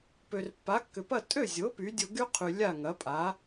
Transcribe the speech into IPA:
p ø˩ r pː a˩˥ kː ʏ˩ p ɐ˥˩ tʼ ø˥˩ zʲ o˩˥ p y˩˥ dʲ o˧ ɡ y˥ qʰ y˩ lʲ a˥˩ ŋ ɐ˩˥ pʼ a˩˥

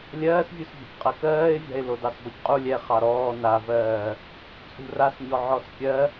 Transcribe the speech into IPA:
lʲ ɜː s vʲ u s vʲ a̤ c qʼ ɜ k ɜː ɪ̯ vʲ a̤ ɪ̯ l o d ɑ s b ɔ c qʼ u lʲ ɛ χ ɑ ɾ ɔː n a v ɜː | t͡sʼ ṳ r a s ɲ ɔ ʕ ɔ s kʲ ɜ

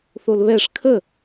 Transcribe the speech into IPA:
θ o l β ɛ ʂ kʰ ə

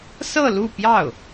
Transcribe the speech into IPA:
s ɤ˥˧ l u˥˧ p j ɑ˥˩ ʊ̯

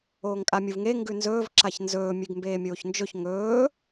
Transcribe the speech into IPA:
oː ŋ kʼ a mʲ u v ŋ e ŋ ɡ ʉ n z ɵː v ǁ a ç n z ɵː mʲ ʉ ɡ m b eː mʲ oː ç n d͡ʒ ɵ ç ŋ ɵː

